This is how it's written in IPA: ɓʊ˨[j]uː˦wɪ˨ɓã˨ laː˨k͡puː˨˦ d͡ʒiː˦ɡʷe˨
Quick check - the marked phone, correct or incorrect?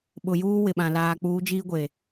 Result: correct